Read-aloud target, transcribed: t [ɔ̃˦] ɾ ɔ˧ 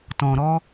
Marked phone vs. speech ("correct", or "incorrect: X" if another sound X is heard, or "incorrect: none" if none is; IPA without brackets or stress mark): incorrect: ɔ̃˨